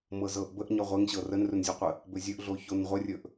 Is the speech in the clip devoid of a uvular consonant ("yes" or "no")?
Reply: no